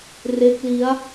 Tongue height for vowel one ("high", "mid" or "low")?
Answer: mid